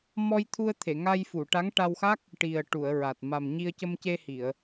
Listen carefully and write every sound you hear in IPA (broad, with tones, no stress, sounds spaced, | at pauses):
m ɔ˧ j t̪ʰ u˧ ə̯ t̪ʰ e˨˩˨ ŋ a˧ j f u˨˩˨ ʈ a˧˥ ŋ ʈ a˧ w x a˦˥ k̚ | ʈ i˨˩ ə̯ ʈ u˨˩˨ ə̯ ɹ a˨˩ t̚ m a˨˩ m ɲ i˧ ə̯ c ə˧ m c e˧ h i˨˩˨ ə̯